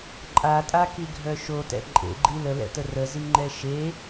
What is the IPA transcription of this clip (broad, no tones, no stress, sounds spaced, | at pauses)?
ǃʼ a tʼ a k i ɡʱ œ ʃ o t ɛ̰ ǃʼ ḛ ɡ͡ǃ i l ə l ɛ̰ t ə r ə z i ŋ͡ǃ ɛ ʃ e